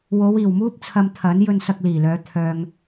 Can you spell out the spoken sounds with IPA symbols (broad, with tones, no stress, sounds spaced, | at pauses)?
w o˨˧ w iː˨˩ w m uː˥ p̚ t͡sʰ ɐ˧ m t̪ʰ ɐ˨˥ n j ɵ˧ n s ɐ˧ k̚ l iː˨˩ l œː˨˧ t̪ʰ œː˨ ŋ